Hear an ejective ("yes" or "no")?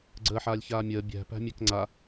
no